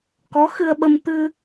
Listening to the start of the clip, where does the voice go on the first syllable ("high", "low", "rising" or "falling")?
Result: rising